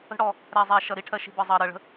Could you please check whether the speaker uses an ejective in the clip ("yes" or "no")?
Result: no